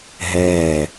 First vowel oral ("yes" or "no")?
yes